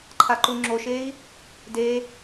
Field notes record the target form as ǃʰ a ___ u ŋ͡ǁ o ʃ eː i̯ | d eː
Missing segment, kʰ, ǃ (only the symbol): ǃ